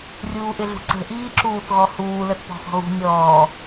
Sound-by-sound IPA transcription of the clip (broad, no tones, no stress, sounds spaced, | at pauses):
rʲ uː ʔ ɪ ɮ ṳ ǀ ə̤ ʔ iː ǁ uː θ ɣ ɔ h uː l ə θ p ɔ̤ x ɔ̤ ɣ ṳ nʲ ɔː